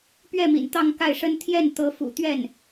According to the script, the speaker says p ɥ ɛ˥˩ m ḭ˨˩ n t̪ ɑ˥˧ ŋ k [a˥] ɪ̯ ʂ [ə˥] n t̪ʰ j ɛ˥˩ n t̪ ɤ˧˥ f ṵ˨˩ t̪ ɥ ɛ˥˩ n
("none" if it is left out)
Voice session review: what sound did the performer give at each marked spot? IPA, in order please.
a˥˩, ə˥

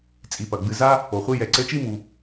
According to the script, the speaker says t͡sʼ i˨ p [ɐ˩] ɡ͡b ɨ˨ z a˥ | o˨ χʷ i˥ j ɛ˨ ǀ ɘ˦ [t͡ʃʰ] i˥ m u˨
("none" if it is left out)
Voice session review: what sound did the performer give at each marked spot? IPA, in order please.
ɐ˩, t͡ʃ

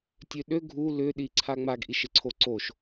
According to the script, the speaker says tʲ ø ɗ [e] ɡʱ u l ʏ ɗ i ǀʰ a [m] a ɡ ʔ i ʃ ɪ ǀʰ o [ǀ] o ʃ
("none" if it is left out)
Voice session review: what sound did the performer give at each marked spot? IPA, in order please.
ø, ŋ͡m, ǀ

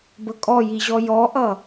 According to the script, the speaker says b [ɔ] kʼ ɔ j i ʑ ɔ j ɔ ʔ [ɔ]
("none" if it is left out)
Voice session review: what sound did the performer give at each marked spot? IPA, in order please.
ə, ʌ

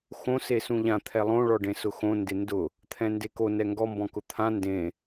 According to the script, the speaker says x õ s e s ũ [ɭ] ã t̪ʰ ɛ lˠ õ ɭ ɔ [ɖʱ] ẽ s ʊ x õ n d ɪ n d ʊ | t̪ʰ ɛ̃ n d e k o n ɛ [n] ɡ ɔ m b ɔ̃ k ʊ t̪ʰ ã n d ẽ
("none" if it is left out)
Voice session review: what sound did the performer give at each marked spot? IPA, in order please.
ʎ, ɖ, ŋ

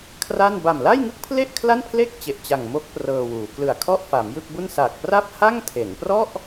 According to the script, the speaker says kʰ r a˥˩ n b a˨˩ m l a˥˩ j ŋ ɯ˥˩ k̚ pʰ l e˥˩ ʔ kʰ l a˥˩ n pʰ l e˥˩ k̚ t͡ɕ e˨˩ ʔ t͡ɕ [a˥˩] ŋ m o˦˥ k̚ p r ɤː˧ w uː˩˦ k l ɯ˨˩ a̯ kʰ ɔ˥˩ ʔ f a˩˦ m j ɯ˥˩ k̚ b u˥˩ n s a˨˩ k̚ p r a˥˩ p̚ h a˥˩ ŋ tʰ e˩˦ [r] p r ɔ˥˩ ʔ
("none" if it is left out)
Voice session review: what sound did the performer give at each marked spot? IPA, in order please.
a˨˩, n

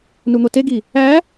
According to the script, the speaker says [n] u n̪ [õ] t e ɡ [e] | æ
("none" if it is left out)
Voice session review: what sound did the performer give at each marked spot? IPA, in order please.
n, o, i

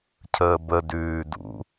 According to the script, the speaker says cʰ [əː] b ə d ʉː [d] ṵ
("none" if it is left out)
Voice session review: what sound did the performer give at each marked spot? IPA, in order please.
əː, d

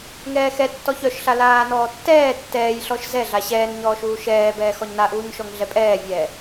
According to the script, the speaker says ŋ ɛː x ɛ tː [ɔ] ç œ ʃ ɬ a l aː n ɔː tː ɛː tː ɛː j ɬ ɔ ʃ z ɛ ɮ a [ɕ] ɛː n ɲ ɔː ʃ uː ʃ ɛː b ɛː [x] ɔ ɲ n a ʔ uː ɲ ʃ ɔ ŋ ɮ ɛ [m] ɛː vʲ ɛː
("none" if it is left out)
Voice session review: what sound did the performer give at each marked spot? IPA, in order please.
ɔ, ɕ, x, pʼ

